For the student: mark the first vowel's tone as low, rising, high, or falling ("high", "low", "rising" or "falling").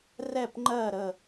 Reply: falling